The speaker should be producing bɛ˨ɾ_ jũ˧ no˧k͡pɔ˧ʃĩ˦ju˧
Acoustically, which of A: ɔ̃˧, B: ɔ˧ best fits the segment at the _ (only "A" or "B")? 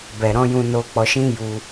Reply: A